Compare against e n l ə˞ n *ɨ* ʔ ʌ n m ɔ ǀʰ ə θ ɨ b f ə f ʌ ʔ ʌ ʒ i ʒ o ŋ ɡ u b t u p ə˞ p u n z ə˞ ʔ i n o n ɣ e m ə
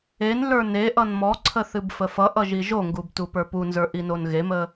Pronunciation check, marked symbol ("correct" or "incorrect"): incorrect